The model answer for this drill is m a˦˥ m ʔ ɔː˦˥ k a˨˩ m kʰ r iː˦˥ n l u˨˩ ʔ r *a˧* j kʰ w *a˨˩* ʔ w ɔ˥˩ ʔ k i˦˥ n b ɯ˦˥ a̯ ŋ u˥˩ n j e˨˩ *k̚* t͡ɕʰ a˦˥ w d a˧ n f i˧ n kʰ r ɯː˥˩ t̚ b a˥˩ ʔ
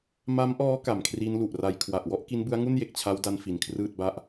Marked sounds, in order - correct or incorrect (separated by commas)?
correct, correct, correct